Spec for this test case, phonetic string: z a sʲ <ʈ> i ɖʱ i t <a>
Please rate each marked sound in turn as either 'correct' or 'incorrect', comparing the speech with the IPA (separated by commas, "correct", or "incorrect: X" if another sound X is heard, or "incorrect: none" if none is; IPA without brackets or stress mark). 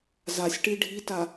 correct, correct